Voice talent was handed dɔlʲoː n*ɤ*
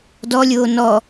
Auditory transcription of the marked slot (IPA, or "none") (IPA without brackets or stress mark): ɔ